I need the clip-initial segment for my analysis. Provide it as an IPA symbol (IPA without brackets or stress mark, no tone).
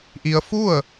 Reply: ʔ